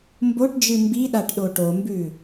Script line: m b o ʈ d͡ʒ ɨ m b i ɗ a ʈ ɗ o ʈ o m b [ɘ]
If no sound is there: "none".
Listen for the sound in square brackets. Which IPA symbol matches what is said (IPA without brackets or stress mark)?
ʉ